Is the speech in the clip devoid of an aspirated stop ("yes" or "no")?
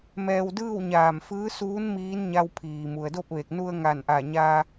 no